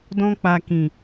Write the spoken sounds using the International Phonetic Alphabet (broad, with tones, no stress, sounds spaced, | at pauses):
d ɔ̃˧ k͡p a˨ k ĩ˨